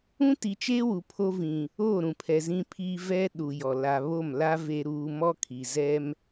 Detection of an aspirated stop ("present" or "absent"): present